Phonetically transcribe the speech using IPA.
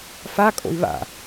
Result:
fakʼo̰i̯ βa̰

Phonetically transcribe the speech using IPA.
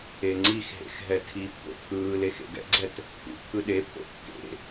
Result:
eŋ͡ǀixɦḛx ɦɛtʰipːo̰ pʰɯːle xḛɡɛ̰ɡ͡ǀɛt | kṵ pʰɯɗepʰo̰ kːḛ

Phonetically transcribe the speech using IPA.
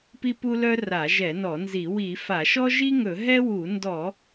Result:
pi˥ pu˥lœ˥ ra˧˩˧ʒɛ˧˩˧nɔ˧˩˧nzi˧˩˧ wi˧˩˧ fa˧˩˧ʃɔ˥ ʒi˥ŋɵ˧˩˧ ɦɛ˥wu˧˩˧ ndɔ˧˩˧

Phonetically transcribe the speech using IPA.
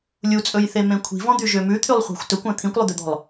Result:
lʲut͡sʼɵjθemẽ kʷʰi̤vɔ̃d̪yʒø mʉt̪ʰylˠχʷɑ̤xʷ tɵkʷœ̃ t̪ʰĩkʷlˠʉd̪ød̪ɔ̤lˠ

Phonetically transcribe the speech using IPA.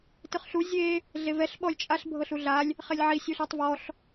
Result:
tɯχɬu zʲe | ɮevɛɬ ɓɔlʲt͡ʃʼaɬ bʱɤɬuɮalʲ | χelʲʕi sʲuɬatˤvɔɬ

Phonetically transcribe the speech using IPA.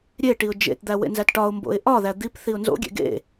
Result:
ɾʲe ʈiʊ̯d͡ʒḛtd̪æ wḛnzætʈɒʊ̯mbo̰ɪ̯ ʔɒðæ d̪ip θiʊ̯nzo̰ɡʲḛ ɡḛ

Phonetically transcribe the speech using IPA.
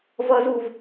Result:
vʌz uv

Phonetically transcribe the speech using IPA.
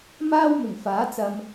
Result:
maː˥w mɪ˨˩ŋfaː˨˥ t͡sɐ˧m

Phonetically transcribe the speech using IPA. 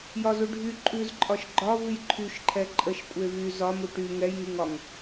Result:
jɒzu ɖʱy ǃʼʉzǃʼɒʃ ɡ͡ǃɒvʉj ǃʰyʃǃʰɛ ǃʼəʃkʷʼe vy zɒmu ʈy ŋɛjŋyŋɒŋ

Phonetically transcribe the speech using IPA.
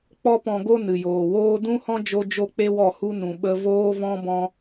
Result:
k͡pɔ˦pɔ̃˧ɡo˦ nɨ˨joː˨woː˦ dũ˦hɔ̃˦ d͡ʒo˦ d͡ʒo˦ k͡pe˦wɔ˦˨hu˦ nũ˨ ɓə˧ voː˦vɔ̃˦ bɔ̃˦

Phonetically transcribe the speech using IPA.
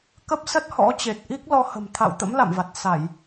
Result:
kə˦˥p̚ sə˦˥t̚hɔ̰˧˥ t͡ɕe˨˩t̚ʔi˦˥k̚lɔ˧ hə̤˨˩mt̪ʰa̰˧˨w t̪ə̰˧˥mla̰˧˨mva˨˩t̚ sa˧˩˨j

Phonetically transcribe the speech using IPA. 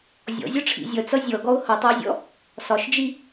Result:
zʲɔ̰zʲɔʈ͡ʂʰḭ zʲʌt͡sʌ zʲɔɡɔʊ̯ hʌtˤʌɪ̯zʲɔ̰ | sɒʃd͡ʒi

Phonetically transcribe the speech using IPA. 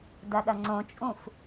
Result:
dɐɗɐŋ͡ǀõt͡ʃʼũf

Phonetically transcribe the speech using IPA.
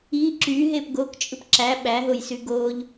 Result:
i ǁyɦep ɡokt͡ʃʼɯp ǁæ ɓæɦojsy ɡoʎ

